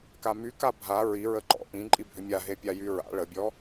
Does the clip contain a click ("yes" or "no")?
yes